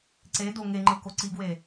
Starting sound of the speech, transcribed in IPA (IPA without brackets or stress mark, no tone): ǀ